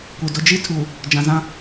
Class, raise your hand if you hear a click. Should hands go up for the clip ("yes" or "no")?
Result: no